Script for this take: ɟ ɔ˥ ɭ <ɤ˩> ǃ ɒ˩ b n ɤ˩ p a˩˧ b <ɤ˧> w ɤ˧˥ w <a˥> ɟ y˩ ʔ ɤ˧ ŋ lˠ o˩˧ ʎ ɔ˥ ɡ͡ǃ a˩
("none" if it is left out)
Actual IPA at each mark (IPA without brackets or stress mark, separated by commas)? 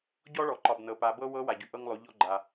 ɔ˩, ɤ˥, a˩